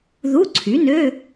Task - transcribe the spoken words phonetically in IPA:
ð u˧˥˧ ǀʰ y˩˥ n ø˧˥˧

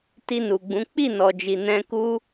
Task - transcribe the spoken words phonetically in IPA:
t i˧ n u˨ ɡ͡b ũ˨˦ k͡p i˦˨ n ɔ˨ d͡ʒ i˨ n ɛ̃˧ k u˦

